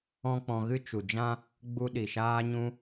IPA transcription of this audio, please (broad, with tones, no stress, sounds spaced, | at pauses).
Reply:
ɔ̃˦ k͡p ɔ̃˧ ɣ ɨ˦ t͡ʃ u˨ d͡ʒ ã˦ | ɡ͡b u˧ ɗ i˨ ʃ aː˧ ɲ ũ˧